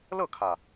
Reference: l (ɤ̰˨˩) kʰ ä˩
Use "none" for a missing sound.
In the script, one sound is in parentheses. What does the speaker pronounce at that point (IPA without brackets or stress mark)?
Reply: ɤ˥˩